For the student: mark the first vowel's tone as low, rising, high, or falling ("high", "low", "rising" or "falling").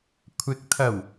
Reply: rising